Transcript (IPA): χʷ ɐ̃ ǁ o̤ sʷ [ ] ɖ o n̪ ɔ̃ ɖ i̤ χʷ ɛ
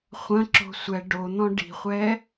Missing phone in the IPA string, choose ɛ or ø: ɛ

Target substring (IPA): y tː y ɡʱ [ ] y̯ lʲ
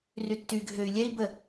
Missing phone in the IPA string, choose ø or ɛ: ø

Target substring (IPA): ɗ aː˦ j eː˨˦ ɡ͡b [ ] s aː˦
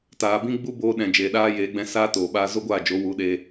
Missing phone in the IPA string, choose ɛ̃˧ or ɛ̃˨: ɛ̃˧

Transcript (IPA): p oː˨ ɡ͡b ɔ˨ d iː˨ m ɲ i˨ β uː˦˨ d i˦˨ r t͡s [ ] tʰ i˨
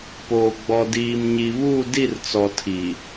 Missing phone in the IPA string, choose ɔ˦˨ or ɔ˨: ɔ˨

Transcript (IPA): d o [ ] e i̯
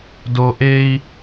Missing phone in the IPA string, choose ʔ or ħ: ʔ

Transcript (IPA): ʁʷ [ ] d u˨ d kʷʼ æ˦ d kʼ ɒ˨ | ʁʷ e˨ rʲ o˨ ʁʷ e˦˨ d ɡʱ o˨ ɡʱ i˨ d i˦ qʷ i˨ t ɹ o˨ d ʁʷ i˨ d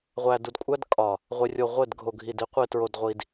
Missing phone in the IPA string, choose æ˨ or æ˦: æ˨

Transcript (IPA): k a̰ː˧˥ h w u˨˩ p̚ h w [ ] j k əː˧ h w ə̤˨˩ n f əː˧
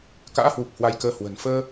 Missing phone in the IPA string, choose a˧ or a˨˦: a˧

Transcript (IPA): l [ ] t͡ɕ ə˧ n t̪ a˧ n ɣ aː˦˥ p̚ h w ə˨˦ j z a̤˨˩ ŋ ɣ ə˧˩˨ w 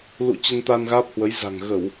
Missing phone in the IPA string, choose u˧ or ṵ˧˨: ṵ˧˨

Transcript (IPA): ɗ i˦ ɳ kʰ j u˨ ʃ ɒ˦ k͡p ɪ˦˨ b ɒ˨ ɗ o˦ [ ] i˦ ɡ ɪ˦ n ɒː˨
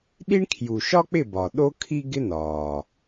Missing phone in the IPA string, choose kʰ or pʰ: kʰ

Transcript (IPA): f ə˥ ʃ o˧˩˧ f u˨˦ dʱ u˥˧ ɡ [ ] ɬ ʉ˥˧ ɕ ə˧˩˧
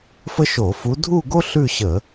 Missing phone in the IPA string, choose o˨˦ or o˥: o˥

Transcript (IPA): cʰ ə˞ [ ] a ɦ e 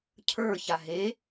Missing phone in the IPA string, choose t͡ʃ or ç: ç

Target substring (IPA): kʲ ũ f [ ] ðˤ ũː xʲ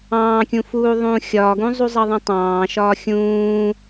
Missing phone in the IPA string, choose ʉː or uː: uː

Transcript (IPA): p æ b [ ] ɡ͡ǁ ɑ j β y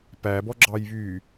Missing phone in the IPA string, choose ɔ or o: ɔ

